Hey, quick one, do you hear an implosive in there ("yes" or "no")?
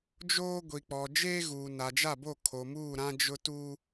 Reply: no